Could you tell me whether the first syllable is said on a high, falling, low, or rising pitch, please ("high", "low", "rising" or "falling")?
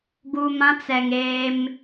low